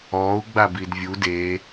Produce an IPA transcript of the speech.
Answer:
ɔu̯ ɡ͡babidvʲu de

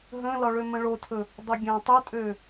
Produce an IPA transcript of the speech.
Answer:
ɦə̃lɒ ɭømə̃ɭotʰɵ | dˤəɡʲæ̃tˤɵtʼø

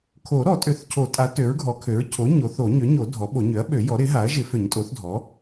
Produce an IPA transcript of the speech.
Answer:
kʰo˨˩˦ ɾɔ˨˩˦tʼø˩˥θcʰo˨˩˦tʼa˩˥ tø˩˥ɹɡʱɔ˩˥kʰø˩˥ɹ cʰo˩˥ ɲo˩˥θo˨˩˦ ɲø˩˥ɲo˨˩˦ dʱɔ˩˥ɓo˨˩˦ ɲø˩˥ɐ̯ɓø˨˩˦ jɔ˩˥ɾɪ˩˥ɦa˩˥ɐ̯ʒɪ˨˩˦ fø˨˩˦ɲtʼo˩˥θdʱɔ˩˥

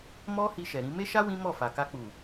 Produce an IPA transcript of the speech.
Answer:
mɔ˦ hi˧ʃɛ˨ɾĩ˧ me˦ʃa˦ wĩ˦ mɔ˦˨fa˨ka˧ k͡pu˨

